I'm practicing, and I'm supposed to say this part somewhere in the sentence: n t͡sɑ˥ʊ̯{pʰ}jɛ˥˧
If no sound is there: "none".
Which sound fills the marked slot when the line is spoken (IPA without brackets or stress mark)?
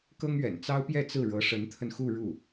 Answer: p